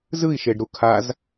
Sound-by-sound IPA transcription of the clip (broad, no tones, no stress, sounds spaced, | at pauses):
z ɯ i̯ ʃ e ɖ ɾ u kʰ a z